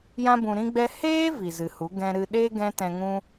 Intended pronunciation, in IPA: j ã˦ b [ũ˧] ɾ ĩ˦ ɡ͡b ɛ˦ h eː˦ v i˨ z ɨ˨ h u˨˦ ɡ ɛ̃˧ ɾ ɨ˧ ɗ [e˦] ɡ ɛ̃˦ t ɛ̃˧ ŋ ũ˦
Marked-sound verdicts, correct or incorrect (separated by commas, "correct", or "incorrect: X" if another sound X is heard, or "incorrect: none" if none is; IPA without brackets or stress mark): correct, correct